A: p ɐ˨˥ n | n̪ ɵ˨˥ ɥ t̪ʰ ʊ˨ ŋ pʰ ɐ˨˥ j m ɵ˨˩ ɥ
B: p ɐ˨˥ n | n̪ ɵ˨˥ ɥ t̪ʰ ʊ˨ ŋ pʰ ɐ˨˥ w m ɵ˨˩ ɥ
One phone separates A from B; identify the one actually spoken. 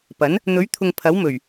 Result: B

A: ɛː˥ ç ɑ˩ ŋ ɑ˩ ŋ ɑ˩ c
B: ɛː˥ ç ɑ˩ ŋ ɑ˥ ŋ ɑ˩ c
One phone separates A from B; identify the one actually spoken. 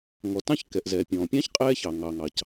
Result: A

